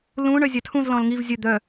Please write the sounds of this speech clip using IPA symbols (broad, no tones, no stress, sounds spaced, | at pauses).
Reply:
l ũ ɳ œ zʲ a tʰ ũ z l ɔ̃ l ŋ i v zʲ ə d̪ œ